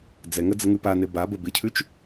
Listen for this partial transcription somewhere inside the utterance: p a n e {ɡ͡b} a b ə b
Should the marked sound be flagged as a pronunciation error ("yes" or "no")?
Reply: yes